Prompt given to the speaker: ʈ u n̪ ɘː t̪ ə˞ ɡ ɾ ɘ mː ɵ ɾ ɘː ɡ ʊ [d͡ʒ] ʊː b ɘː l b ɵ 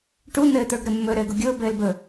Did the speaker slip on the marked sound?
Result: yes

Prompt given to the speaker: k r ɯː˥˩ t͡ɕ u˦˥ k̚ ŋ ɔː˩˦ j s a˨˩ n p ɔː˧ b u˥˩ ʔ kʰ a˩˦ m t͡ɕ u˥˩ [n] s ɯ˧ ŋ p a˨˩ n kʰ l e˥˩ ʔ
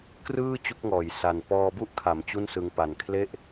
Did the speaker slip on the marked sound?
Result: no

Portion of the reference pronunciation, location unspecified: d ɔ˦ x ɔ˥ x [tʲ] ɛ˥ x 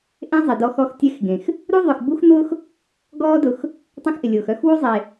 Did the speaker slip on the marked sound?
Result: no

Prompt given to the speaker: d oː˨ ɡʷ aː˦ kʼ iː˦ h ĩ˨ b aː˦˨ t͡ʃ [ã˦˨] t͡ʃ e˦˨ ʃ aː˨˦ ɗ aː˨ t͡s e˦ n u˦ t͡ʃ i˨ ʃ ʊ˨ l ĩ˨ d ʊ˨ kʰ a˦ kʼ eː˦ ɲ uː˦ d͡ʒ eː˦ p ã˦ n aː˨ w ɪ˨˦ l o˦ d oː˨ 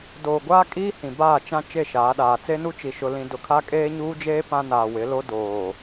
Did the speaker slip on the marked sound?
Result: yes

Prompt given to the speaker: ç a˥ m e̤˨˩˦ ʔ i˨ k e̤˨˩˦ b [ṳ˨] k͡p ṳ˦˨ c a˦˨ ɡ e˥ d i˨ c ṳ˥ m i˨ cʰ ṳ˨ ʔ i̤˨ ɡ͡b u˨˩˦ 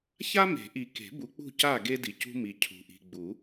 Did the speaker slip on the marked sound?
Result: yes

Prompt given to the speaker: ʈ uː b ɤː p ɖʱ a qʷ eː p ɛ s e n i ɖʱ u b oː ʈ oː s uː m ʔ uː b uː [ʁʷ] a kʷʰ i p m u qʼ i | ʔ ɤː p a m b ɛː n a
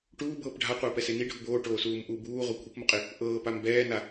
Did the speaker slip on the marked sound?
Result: no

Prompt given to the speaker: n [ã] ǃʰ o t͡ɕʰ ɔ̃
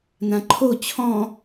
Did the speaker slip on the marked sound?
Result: no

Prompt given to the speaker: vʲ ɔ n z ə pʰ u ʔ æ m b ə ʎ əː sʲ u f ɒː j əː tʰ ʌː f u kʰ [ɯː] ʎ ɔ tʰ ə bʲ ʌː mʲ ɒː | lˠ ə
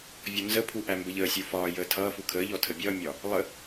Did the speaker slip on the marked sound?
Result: yes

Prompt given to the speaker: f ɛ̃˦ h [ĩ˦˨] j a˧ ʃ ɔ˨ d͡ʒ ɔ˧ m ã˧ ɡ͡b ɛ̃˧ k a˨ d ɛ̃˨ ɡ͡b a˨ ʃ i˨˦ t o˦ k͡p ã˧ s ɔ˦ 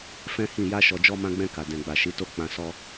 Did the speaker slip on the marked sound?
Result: no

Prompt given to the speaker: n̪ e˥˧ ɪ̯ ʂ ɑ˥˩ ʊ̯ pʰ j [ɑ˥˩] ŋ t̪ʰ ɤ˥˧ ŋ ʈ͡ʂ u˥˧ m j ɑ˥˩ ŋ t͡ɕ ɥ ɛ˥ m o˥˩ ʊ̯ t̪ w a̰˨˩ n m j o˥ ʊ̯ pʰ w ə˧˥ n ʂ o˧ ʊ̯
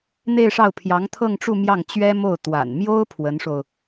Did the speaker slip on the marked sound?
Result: yes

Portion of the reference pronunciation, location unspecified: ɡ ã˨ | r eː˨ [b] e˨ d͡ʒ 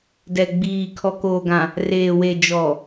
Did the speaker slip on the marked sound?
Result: yes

